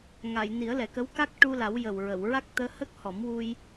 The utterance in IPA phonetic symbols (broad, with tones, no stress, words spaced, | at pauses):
ŋa˨˩˨jni˨˩˦ə̯lɛ˨˩kə˧˥w ka˦˥k̚ ʈu˧la˨˩˦wjə˨˩w ɹə˨˩˨w ɹa˦˥k̚t̪əː˧˥ hə˦˥k̚hɔ˨˩˦mwu˧j